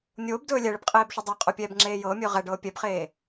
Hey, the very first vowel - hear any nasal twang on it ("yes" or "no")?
no